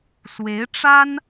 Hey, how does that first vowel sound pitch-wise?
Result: rising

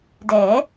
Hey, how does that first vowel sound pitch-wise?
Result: rising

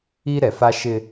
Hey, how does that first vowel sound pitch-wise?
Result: high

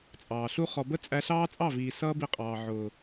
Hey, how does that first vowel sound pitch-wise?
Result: low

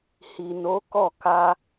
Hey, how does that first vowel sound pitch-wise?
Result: low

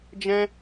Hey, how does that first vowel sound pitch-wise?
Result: high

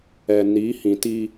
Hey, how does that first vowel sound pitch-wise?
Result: low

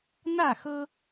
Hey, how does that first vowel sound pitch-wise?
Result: falling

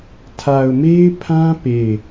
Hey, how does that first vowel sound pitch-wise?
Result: low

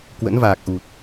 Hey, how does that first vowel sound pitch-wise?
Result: rising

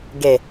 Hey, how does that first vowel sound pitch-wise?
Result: low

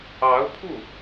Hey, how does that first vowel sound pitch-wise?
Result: rising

